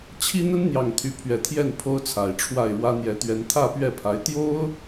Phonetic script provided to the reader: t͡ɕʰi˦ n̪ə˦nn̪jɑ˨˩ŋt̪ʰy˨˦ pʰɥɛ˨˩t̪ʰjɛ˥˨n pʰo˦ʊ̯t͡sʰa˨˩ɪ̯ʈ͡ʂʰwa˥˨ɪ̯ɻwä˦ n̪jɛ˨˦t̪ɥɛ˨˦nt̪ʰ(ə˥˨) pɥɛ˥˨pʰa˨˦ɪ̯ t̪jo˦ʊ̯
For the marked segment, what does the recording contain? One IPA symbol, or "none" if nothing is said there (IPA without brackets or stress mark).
ä˥˨